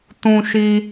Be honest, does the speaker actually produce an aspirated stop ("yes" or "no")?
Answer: no